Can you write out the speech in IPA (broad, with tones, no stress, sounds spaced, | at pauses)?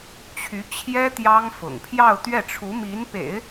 t͡ɕʰ y˧˥ t͡ɕʰ j ɛ˥ t̪ j ɑ˥ ŋ f ʊ̰˨˩ ŋ pʰ j ɑ˥˧ ʊ̯ t̪ ɥ ɛ˥˩ ʈ͡ʂʰ u˧˥ m i˧˥ n p ḛ˨˩˦ ɪ̯